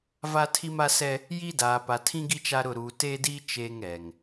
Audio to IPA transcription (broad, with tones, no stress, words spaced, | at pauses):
va˦tʰi˦ma˦sɛ˦ | jiː˦daː˨ pa˨tʰĩ˦ɡi˦ t͡ʃa˦ɾʊ˦˨ ɾuː˨teː˦diː˦ t͡ʃeː˦ŋ ɛ˨ŋ